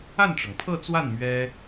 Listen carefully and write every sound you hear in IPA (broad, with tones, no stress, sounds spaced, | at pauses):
a˥˩ n ʈ͡ʂ ɤ˩ ŋ pʰ ɤ˥˧ t͡s w a˥˩ n m ɥ ɛ˥